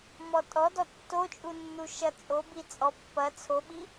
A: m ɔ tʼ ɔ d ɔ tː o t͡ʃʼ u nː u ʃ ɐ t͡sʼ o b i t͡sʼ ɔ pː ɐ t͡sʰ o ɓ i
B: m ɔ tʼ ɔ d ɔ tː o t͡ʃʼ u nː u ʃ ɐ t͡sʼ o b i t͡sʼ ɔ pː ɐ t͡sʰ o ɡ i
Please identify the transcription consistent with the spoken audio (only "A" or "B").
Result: A